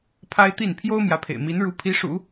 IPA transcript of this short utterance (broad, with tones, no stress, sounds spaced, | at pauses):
pʰ a˥ ɪ̯ t̪ i˥˩ n pʰ j o˥ ʊ̯ m j ä˧˥ pʰ ḛ˨˩ ɪ̯ m i˧˥ n ɻ u˧˥ pʰ i˧˥ ʂ ṵ˨˩˦